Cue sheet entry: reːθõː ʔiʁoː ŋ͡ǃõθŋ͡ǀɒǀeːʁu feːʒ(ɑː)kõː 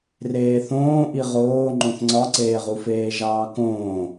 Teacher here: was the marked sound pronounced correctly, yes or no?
yes